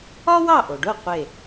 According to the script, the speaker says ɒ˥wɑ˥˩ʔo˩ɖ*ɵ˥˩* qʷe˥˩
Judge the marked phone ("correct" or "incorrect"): incorrect